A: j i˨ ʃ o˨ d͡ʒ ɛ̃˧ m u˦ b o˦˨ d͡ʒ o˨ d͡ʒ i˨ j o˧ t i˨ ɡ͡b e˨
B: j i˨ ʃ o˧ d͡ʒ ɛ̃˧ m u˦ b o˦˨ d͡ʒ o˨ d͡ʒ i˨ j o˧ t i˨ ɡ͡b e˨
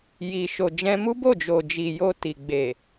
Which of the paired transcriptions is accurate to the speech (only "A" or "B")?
A